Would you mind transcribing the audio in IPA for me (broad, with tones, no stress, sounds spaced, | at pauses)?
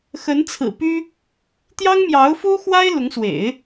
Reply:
x ə˧˥ n t͡sʰ ɹ̩˨˩ p y˥ | t̪ j ɑ˥ ŋ m j ɑ˧˥ ʊ̯ f u˥ x w a˥ ɪ̯ l ʊ˧˥ ŋ s w ḛ˨˩˦ ɪ̯